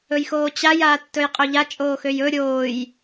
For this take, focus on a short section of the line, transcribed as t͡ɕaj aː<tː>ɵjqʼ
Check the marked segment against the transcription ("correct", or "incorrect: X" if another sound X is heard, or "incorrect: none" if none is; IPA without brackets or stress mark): correct